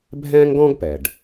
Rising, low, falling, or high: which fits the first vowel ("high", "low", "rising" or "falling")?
high